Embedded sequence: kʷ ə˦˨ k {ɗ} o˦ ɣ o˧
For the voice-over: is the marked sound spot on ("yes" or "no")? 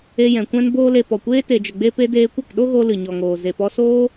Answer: yes